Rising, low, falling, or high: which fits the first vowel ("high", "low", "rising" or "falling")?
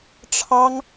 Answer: high